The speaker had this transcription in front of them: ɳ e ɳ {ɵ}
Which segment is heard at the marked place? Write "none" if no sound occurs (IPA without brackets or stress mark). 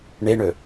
ɵ